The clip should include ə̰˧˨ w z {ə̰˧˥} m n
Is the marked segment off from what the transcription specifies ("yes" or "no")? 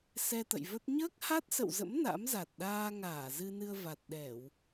no